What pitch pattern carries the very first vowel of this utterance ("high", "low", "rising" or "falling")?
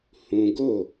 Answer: high